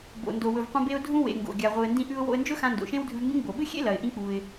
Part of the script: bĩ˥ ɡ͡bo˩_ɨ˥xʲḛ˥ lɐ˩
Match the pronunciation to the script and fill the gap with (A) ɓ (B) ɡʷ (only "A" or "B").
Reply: A